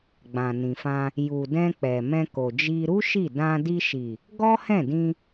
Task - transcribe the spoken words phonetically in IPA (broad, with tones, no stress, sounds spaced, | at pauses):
ɡ͡b ã˨ n ĩ˨ f ã˧ | j u˨ d ɛ̃˧ k͡p ɛ˨ m ɛ̃˧ k o˨ d͡ʒ i˧ ɾ u˦ ʃ i˦˨ d ã˧ d i˧ ʃ i˨ | ɡ ɔ˦ h ɛ̃˦˨ d ĩ˧